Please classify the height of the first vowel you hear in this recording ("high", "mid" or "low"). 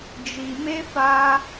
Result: high